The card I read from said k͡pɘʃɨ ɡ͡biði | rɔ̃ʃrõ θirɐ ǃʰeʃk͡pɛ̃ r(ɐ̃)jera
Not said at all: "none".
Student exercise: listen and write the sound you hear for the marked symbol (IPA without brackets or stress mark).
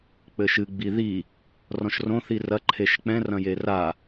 ɐ̃